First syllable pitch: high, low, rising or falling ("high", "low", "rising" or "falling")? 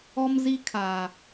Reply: high